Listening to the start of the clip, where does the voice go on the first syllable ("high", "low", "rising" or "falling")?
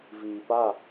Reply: low